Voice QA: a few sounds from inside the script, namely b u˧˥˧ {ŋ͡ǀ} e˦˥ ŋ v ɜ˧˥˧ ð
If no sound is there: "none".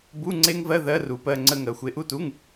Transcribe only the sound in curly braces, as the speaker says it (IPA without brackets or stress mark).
ŋ͡ǀ